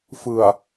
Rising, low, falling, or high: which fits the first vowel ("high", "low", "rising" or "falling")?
low